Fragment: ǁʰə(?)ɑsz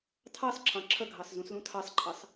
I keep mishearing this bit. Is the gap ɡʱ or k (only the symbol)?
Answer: ɡʱ